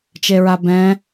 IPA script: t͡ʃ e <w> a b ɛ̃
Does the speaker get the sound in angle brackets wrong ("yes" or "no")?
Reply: yes